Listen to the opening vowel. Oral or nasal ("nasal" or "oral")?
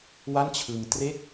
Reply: oral